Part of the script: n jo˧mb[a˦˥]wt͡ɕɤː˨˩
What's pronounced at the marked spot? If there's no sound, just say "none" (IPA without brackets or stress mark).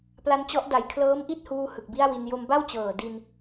a˥˩